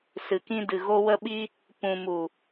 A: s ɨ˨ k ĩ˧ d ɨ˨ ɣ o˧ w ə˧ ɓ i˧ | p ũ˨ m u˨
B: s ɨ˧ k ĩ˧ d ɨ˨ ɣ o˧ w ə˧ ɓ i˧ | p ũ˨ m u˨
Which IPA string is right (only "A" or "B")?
A